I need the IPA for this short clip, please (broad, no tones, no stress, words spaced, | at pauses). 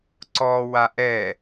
ǀɔwa ʔɛ